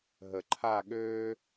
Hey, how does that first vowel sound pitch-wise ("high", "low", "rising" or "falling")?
low